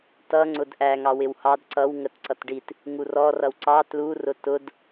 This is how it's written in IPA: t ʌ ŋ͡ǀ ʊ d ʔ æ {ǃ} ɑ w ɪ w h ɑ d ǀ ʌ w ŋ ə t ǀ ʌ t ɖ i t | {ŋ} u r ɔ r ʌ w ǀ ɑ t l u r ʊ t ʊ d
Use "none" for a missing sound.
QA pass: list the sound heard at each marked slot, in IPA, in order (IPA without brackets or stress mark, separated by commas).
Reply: ŋ, ŋ